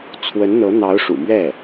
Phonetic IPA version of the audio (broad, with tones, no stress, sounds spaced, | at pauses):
t͡sʰ w ə˧˥ n n̪ ɤ˧˥ n̪ ɑ˧˥ ʊ̯ ʂ ṵ˨˩ m ɥ ɛ˥˩